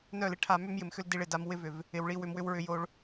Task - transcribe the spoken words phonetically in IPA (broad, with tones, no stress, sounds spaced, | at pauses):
n œ˦˨ l ɪ˦ ʈʰ a˧ m ʏ˦ m j ɪ˨ m x ʏ˦ l d i˧ ɭ ɪ˨ d a˧ m w ɪ˦ v ʏ˨ v | ɪ˧ w ɭ i˦ w ʏ˧ m w ʏ˦ w ɹ ʏ˧ j o˧ ɭ